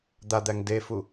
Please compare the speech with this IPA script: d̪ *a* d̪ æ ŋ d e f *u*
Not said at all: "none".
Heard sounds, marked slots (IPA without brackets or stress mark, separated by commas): a, u